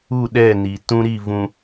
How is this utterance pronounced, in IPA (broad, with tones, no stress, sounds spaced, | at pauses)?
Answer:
u˦˨ ɗ ɛ˦˨ n i˨ t ũ˦ ɾ i˦˨ v ũ˨